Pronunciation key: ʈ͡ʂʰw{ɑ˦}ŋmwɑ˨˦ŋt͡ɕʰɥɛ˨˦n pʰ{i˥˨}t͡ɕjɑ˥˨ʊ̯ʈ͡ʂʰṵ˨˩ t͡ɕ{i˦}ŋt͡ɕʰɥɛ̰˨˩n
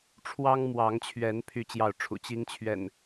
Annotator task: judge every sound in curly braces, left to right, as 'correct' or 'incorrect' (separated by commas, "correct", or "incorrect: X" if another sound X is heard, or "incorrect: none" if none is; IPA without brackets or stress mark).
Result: correct, incorrect: y˥˨, correct